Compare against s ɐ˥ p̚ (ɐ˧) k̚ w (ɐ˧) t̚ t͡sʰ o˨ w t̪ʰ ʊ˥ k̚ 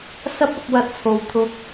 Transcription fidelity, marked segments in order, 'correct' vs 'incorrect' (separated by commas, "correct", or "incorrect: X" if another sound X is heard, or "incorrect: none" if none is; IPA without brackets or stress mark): correct, correct